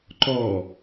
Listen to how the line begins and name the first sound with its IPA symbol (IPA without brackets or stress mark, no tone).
ǃ